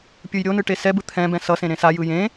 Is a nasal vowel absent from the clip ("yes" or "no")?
no